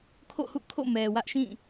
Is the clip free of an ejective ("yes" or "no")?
yes